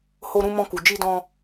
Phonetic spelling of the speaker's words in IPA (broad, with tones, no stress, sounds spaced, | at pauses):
h o˧ ɾ ũ˧ m ɔ̃˧ k u˨ d͡ʒ i˧ d ɔ̃˧